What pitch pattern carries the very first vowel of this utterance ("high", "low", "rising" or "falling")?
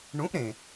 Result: rising